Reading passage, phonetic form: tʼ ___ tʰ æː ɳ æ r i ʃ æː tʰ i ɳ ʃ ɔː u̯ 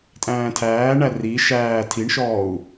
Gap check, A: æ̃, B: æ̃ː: B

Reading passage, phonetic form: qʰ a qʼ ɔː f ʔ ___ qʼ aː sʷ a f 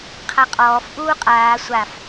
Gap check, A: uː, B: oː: A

